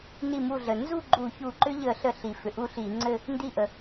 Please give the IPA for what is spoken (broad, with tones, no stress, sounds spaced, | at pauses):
n i˧˩ m u˧˩ ɮ ə˩ n z u˥˨ ɡ͡ǃ u˧˩˧ ç u˧˩ ǃ ʏ˦ ʎ ə˧˩˧ ɬ ə˧˩˧ ɬ i˩ f ʏ˩ ʔ u˦ ɬ i˧˩˧ ŋ͡ǀ ɘ˥˨ | n d i˧˩ ʔ ə˩